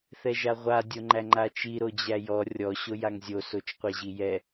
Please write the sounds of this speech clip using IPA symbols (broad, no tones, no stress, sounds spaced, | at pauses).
θ ɛ ʒ a ʁʷ a dʲ o ŋ͡ǃ æ ŋ͡ǃ a t͡ʃ i ɾ o d͡ʑ æ j ɔ rʲ ɔ ɕ o j a ŋ zʲ o s o t͡ʃ qʷ ɛ ʑ i j ɛ